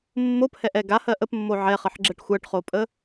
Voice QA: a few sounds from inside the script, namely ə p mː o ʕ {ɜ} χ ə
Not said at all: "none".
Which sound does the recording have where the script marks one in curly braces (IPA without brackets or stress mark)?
ɛ